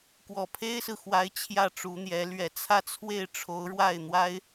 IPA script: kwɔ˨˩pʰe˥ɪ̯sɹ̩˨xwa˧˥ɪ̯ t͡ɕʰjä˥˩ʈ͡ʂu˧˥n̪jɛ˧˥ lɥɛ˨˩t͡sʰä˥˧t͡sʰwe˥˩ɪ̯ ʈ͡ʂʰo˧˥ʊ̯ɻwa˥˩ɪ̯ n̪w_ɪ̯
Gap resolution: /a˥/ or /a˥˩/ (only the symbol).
a˥